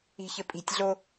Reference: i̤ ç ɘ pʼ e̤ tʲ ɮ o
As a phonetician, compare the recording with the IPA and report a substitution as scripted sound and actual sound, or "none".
e̤ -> i̤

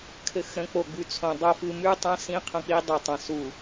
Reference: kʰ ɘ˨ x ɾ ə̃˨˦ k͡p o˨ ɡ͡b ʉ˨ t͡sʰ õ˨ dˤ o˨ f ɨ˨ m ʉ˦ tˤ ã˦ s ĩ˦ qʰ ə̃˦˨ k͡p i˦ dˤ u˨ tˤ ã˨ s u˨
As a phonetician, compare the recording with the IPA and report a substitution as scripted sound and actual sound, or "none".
none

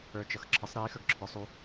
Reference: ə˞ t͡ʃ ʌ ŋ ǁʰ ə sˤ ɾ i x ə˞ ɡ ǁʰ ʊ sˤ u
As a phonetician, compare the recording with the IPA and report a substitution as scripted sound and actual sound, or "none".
ŋ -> x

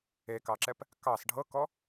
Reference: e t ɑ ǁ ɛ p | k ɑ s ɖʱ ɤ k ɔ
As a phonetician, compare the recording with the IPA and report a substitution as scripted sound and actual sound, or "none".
t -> k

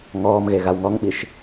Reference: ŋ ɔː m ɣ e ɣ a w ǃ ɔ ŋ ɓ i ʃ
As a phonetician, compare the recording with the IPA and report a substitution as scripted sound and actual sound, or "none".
ǃ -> ŋ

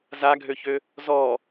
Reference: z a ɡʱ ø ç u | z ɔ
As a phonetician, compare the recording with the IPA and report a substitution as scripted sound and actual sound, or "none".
u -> ø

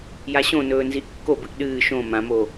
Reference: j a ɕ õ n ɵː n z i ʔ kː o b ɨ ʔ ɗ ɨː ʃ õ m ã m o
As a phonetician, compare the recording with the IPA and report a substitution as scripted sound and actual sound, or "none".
none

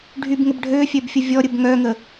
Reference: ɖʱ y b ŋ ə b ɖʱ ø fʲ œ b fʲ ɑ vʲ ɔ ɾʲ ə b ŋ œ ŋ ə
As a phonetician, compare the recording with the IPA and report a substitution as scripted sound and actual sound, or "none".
ɑ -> ə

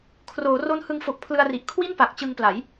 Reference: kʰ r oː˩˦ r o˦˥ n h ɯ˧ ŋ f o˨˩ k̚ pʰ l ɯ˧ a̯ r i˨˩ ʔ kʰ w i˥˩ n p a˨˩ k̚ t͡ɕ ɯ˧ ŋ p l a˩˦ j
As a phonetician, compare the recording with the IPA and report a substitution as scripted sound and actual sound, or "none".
none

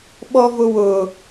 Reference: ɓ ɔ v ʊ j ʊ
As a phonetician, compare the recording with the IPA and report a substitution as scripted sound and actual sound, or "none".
j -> w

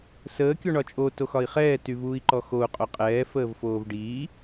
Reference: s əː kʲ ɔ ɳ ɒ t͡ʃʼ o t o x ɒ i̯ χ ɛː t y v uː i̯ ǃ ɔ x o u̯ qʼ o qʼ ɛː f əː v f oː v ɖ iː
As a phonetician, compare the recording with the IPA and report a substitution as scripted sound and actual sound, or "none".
none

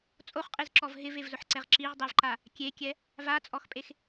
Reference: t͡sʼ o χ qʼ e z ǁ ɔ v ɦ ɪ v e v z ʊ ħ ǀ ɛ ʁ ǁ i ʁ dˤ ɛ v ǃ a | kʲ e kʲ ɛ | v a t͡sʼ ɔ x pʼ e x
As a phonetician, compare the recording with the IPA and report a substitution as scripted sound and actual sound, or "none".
none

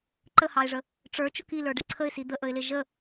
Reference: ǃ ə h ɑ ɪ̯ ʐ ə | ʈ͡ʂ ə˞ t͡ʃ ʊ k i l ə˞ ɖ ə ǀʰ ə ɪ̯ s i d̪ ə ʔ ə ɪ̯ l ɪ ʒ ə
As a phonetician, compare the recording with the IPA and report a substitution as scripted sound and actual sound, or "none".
none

